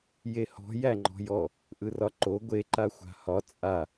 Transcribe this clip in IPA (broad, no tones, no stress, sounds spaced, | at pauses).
j e h ɔ̤ j æ ŋ͡ǃ ɔ̤ j ɔ | ʔ ɯ r ɒ ǃ o ɡʷ e ǃ a xʷ a̤ h ɒ t͡sʼ a